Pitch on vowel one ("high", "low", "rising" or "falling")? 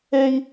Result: high